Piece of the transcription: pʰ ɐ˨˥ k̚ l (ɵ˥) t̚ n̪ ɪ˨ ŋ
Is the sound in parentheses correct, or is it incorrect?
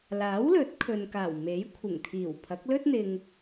correct